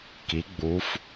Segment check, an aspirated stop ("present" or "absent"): absent